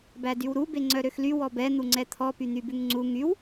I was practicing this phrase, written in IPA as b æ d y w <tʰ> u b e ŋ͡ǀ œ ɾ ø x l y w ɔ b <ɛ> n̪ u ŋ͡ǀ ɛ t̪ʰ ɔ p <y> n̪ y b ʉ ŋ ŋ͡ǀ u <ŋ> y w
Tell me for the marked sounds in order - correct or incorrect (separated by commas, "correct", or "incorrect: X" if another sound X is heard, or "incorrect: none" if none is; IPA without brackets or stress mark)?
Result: incorrect: ɾ, correct, correct, correct